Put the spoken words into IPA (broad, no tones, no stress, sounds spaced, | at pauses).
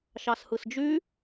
ʃ ɑ s h ɯ s d͡ʒ y